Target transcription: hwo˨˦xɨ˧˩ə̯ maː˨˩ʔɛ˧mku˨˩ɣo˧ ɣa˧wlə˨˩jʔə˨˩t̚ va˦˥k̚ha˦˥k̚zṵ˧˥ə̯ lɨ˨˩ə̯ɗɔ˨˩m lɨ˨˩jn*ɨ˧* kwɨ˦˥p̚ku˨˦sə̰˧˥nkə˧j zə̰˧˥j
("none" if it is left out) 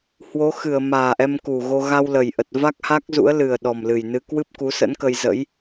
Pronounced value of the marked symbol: ɨ˧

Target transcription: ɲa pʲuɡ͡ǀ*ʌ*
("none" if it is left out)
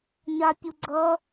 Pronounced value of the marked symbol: ʌ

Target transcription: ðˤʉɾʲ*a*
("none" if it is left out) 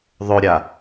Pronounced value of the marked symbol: a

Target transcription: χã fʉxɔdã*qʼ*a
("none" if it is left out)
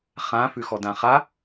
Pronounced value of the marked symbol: χ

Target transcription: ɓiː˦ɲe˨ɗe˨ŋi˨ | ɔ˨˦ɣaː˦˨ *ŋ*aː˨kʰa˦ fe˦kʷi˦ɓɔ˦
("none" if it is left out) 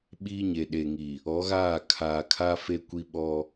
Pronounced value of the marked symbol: kʰ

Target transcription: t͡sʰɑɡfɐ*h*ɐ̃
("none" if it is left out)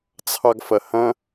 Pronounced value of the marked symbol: h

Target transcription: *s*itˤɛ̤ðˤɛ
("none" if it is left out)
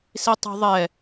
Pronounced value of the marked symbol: s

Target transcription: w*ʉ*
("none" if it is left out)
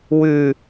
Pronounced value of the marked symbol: ʉ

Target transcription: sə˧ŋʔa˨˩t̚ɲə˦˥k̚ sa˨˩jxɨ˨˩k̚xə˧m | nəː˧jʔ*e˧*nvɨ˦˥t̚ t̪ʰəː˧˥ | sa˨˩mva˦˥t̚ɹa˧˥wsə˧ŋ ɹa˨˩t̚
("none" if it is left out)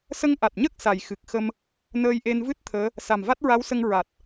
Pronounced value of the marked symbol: e˧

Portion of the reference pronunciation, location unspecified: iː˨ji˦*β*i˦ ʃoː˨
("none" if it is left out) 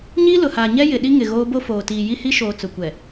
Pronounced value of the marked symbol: h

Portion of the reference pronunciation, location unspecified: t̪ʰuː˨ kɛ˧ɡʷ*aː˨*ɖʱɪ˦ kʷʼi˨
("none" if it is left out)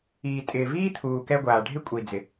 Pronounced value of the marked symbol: aː˨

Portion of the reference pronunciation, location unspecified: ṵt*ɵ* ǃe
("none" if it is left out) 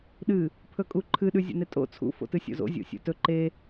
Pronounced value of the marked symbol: ɵ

